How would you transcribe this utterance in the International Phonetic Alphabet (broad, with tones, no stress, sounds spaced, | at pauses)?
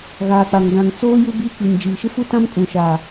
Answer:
ɣ aː˨ k͡p a˨ ŋ ɡ ã˨ ŋ t͡s oː˦ j u˦ b iː˦ k͡p i˨ n d͡ʒ iː˨ ʃ ɪ˦ f u˦ t ã˦ m kʼ ũ˨ ʃ aː˨